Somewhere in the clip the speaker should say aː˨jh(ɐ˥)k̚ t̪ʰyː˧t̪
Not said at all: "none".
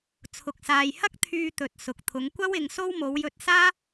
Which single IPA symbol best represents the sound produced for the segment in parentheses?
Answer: ɐ˥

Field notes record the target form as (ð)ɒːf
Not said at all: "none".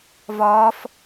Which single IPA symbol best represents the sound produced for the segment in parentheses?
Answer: v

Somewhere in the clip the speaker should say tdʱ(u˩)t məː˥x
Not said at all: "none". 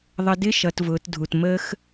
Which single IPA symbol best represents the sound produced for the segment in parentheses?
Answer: u˩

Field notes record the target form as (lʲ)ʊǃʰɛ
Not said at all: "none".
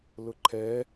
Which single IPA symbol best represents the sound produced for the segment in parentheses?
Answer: l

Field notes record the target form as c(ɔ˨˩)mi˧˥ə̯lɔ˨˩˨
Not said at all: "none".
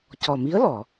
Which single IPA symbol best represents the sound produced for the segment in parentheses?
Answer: ɔ˨˩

